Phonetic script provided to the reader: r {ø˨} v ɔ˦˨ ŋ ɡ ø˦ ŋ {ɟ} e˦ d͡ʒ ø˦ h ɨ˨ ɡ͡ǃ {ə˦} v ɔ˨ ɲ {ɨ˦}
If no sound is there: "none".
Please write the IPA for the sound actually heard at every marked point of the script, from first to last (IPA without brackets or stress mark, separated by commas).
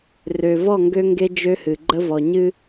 ø˨, ɡ, ə˦, ɨ˦